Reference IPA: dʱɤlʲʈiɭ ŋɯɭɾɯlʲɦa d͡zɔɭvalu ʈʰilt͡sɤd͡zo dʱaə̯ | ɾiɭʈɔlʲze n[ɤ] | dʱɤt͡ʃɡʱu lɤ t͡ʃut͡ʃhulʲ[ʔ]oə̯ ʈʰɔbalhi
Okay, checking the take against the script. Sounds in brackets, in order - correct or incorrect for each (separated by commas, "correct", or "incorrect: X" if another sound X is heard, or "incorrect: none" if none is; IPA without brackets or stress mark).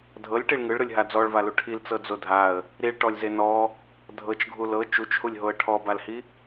incorrect: ɔ, incorrect: ɦ